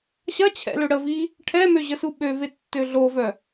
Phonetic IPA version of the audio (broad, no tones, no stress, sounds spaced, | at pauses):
ɕ ɐ t͡ɕʰ ɛ̰ l ø ɽ ə v i | ʈʰ ɛ m ø ʑ ə s u ɓ ø v e tː ø ɮ o v œ